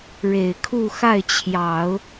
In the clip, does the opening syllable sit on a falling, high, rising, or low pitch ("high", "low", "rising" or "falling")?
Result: low